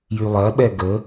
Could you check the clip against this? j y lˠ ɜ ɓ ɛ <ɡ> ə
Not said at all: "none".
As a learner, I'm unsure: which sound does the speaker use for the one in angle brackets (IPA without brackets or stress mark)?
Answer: ɡ